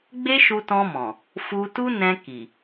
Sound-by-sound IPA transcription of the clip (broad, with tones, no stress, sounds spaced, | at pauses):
ɡ͡b e˦ ʃ u˧ t ɔ̃˧ m ɔ̃˨ | f u˧ t u˦ n ɛ̃˧ k i˨